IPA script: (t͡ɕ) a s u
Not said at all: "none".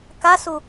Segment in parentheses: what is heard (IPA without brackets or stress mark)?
k